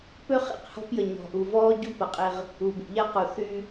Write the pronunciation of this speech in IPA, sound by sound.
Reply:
p ø˦ χ ḛ˦˨ q h ɔ̤˦ p j ə˨ ɲ ɔ̤˨ ʔ u˨ v ɔː˦ ɟ u˦ p ɐ˨ qʼ ɪ˦ ʁ | u˨ b ṵ˨ ʎ a˦ q u˨ θ y˦

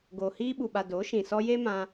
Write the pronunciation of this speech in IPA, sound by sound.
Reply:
ɡ oː˨ h iː˧ ɓ u˨ ɓ a˨ d o˨˦ ʃ ĩ˨ s ɔ˧ j e˦ m ã˧

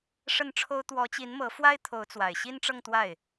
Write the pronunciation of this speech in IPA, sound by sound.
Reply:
ʂ ə˥˩ n ʈ͡ʂʰ o˥ ʊ̯ t̪ w ɔ˧˥ t͡ɕ i˧˥ n m ɤ˧˥ f w a˥ ɪ̯ t̪ʰ o˧˥ ʊ̯ t͡s w a˨˩ ɪ̯ ɕ i˥ n ʈ͡ʂ ɤ˥˧ ŋ t̪ w a˥˩ ɪ̯

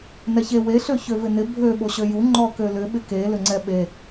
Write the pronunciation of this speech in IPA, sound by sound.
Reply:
n ɛ ç e w e ɬ ø ç ø v ɪ n ɪ bʱ ø ɓ o ɕ ø j u ŋ͡ǃ ɔ k ø l ʏ ɓ ɪ k e l ʏ ŋ͡ǀ ɛ ɓ e

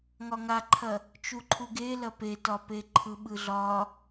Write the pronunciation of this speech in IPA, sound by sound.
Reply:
ŋ ɒ ŋ a ǃʰ ɐ | t͡ʃ u ǃʰ u ɡ e l ɐ p e t ɒ p e ǃʰ ɯ ɓ ɯ ɮ ɒ

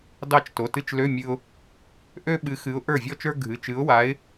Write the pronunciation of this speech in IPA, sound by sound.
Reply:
d ɑ˥˩ t͡ʃ t o˩˧˩ t ɨ˥˩ t͡ʃ l ø˧˥˧ mʲ ɨ˧ ʊ̯ | ʔ ø˥ ɓ ɨ˨˥ x ɨ˨˥ ʊ̯ ʔ ə˞˥˩ vʲ ɔ˥ t͡ʃ ə˞˥ ɡʱ ɨ˩˧˩ t͡ʃ ɨ˨˥ ʊ̯ w a˨˥ ɪ̯

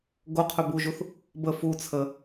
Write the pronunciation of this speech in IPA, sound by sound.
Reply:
ɡ o qʰ ɵ b u ʒ u θ | b ə f u t͡sʰ ə

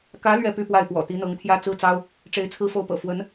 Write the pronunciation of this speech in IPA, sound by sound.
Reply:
k ä˧˥ l ɥ ɛ˥˧ p y˥˧ p w a˥˩ ɪ̯ p w ɔ̰˨˩ t̪ i˧˥ n̪ ɤ˧˥ ŋ t̪ʰ j ä˥ t͡s ɹ̩˥ t͡s ɑ˥ ʊ̯ | ʈ͡ʂ e˧˥ ɪ̯ t͡sʰ ɹ̩˥˧ f o˥˩ ʊ̯ p ɤ̰˨˩ f w ə˧˥ n

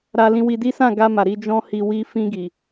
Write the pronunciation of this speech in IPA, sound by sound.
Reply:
ɾ a˧ l ĩ˧ w i˧ d i˦ s ã˦˨ ɡ a˧ m a˨ ɾ i˧ d͡ʒ ɔ̃˦ h i˧ w i˦ f ĩ˧ ɡ i˨

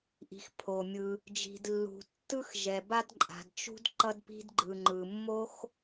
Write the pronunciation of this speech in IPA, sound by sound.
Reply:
ʔ i̤˩ x pʰ o˩ mʲ ɯ˩ | d͡ʒ i̤˩ d lː ṳ˩ tː ɯ˥ x ʒ ɛ˩ b a˥ d ǃʼ a̤˩ d t͡ʃ ṳ˥ d ǃ ʌ˥ d p i̤˥ d ɡ͡ǃ ɯ˩ ŋ͡ǃ ɯ˩ mː o˥ x

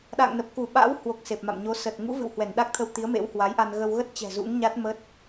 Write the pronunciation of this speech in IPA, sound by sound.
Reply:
ɗ a̰ː˧˨ ŋ n ə˨˩ p̚ k u˧˩ ɓ a̰ː˧˥ w h w o˨˩ k̚ s e˨˩ p̚ m a̰˧˨ m ɲ o˨˦ s ə˨˩ t̚ ŋ ṵ˧˥ v ɨ̰˧˨ w h w ɛ˧˩ n ɗ a˦˥ k̚ t̪ʰ ə˧ w t̪ i˨˦ ə̯ m ḛ˧˥ w h w a˨˦ j ʔ a˧ n ɣ ə˧ w ɣ ə˦˥ t̚ t͡ɕ ɛ̤˨˩ z ṵ˧˥ ŋ ɲ a˦˥ t̚ m ə˦˥ t̚

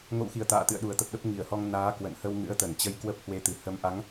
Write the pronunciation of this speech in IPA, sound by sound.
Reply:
ŋ o̰˧˨ w x i˧˩ ə̯ t̪ a̰ː˧˨ t̪ ɨ̰˧˨ ə̯ ɗ u˨˩ ə̯ t̪ ə˨˩ p̚ ɗ ə˦˥ p̚ ŋ i˧˩ ə̯ h ɔ˧ ŋ n aː˨˦ k w ə̰˧˨ n h ə˧ w ŋ ɨ̰˧˥ ə̯ t̪ ə˧˩ n t͡ɕ ə˧ j k w ə˦˥ p̚ h w e˧ t̪ ɨ˨˩ h ə˨˦ m ʔ a˨˦ ŋ

